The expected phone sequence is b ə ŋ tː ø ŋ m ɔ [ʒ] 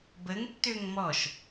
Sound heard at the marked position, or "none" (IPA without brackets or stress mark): ʃ